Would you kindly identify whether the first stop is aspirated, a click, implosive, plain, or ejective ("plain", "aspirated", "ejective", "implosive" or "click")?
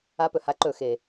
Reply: plain